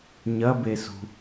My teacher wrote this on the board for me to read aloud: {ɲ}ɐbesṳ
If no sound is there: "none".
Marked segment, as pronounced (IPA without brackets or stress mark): ɲ